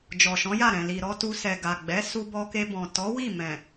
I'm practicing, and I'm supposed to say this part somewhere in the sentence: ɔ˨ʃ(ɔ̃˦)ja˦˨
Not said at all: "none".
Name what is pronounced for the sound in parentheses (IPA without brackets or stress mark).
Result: ɔ̃˨˦